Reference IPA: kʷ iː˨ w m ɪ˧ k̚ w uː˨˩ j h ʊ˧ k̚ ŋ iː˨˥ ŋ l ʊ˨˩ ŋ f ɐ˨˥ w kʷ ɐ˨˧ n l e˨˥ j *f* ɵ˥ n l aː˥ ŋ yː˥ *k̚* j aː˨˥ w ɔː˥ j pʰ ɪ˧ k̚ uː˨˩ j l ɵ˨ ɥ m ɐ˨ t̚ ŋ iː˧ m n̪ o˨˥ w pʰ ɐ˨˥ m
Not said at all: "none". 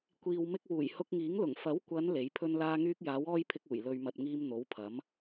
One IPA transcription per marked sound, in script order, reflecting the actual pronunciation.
pʰ, k̚

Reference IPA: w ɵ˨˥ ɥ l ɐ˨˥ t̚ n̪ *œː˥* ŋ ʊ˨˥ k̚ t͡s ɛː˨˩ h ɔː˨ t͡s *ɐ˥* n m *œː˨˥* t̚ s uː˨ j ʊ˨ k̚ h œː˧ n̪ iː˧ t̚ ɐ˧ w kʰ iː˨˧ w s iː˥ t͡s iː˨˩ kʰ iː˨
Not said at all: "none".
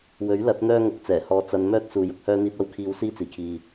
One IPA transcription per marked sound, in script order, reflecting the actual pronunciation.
œː˥, ɐ˨˧, œː˥

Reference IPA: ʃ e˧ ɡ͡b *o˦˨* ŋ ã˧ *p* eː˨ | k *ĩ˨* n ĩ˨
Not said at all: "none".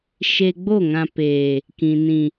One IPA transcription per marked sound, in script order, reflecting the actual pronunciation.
o˦˨, p, ĩ˨

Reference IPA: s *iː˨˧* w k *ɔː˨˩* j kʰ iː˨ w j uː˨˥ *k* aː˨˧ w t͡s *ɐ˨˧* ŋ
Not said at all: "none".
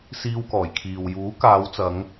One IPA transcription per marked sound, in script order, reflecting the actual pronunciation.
iː˧, ɔː˨˩, k, ɐ˨˧

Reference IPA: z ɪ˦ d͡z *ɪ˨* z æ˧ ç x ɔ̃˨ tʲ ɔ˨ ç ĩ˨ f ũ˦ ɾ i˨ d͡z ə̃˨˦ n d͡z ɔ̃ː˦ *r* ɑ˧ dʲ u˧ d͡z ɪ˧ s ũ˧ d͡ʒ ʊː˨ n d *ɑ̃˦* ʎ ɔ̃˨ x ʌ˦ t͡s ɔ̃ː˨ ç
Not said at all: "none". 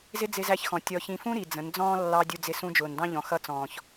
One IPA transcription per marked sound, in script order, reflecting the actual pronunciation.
ɪ˧, lː, ɑ̃˦

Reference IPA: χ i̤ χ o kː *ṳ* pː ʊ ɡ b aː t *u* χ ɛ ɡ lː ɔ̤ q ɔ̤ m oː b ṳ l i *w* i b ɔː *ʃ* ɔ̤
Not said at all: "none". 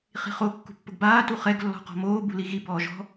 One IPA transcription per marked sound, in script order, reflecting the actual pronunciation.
ṳ, u, ɣ, ʒ

